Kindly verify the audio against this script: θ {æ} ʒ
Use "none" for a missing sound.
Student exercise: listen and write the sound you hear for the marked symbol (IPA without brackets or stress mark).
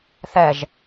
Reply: ɛ